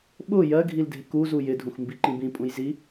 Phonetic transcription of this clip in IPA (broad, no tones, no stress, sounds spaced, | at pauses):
ɓ ʊ j ɜ ɡʱ i l dʱ ɪ k u z u j ɪ dʱ ũ x m b i ǃ ĩ b ĩ pʼ ũ j z i